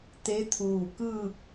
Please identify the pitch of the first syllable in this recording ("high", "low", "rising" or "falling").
rising